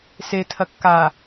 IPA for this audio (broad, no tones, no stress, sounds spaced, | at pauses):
s e tʰ ɐ kː a